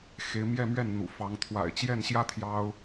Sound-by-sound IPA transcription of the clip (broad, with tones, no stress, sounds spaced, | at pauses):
x e˧˥ ɪ̯ m j ɛ˥˧ m ɥ ɛ˥˩ n n̪ ṵ˨˩ f ɑ˧˥ ŋ t̪ʰ w a̰˨˩ ɪ̯ t͡ɕ j ɛ˥˩ n ɕ j ä˥ t̪ʰ j ɑ˥ ʊ̯